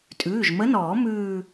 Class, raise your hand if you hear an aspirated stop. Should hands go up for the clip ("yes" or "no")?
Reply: no